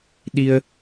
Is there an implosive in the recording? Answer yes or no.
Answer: yes